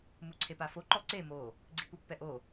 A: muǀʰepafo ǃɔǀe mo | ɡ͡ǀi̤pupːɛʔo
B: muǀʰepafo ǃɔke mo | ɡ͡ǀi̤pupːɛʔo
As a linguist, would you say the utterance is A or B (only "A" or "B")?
A